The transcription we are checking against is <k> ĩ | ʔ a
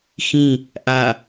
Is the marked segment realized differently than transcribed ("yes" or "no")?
yes